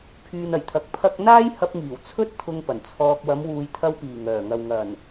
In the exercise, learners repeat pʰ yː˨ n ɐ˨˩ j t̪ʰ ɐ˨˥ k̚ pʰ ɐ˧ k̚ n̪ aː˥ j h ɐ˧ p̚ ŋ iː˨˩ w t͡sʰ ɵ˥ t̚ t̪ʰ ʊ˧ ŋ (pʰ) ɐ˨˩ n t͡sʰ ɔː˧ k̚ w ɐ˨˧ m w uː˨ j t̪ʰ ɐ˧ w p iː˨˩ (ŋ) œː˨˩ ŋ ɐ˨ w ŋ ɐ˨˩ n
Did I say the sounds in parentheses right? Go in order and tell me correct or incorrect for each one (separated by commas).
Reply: incorrect, correct